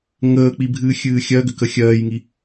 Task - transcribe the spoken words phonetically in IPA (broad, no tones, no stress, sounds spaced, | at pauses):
ŋ əː k͡p i bʱ ɨː xʲ ɨː xʲ ɜ ɡ ʏ k ə xʲ ɜː j ŋ i